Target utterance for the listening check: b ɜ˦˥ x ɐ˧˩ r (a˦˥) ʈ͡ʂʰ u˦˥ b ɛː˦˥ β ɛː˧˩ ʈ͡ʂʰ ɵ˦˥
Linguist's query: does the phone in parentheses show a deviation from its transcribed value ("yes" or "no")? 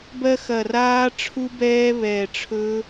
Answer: yes